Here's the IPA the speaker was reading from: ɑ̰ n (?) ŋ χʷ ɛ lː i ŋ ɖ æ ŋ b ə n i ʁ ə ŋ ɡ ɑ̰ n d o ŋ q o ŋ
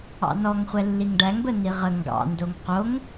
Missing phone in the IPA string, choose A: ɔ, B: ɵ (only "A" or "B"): A